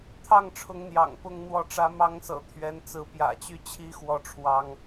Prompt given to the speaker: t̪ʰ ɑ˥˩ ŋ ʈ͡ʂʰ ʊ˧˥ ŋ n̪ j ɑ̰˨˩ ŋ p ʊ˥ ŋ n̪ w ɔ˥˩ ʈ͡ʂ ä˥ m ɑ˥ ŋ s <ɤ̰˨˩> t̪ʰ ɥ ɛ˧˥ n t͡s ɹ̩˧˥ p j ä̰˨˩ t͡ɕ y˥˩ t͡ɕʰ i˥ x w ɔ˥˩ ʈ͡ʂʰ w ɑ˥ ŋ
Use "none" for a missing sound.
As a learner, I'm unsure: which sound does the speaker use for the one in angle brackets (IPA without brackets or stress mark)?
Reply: ɤ̰˨˩